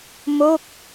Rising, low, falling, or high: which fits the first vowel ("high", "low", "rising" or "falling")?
falling